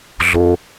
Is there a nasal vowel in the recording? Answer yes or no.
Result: no